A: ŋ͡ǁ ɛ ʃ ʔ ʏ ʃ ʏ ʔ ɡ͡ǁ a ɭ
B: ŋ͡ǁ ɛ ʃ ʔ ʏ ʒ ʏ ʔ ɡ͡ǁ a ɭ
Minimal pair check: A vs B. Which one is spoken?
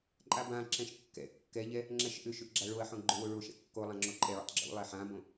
A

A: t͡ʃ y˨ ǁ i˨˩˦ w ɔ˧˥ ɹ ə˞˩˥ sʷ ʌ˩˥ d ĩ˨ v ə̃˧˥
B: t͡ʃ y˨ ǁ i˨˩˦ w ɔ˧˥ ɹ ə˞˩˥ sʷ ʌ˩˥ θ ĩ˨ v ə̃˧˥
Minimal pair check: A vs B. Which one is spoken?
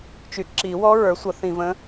B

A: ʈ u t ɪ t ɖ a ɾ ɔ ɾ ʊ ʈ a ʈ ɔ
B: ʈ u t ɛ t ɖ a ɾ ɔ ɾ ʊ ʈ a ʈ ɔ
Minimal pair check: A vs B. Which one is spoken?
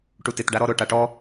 A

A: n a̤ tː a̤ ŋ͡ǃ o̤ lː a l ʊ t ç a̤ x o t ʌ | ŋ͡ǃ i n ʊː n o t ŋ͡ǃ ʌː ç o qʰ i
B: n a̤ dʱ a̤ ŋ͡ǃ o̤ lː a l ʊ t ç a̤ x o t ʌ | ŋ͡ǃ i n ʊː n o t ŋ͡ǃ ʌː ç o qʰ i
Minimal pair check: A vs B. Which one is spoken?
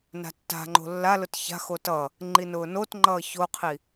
A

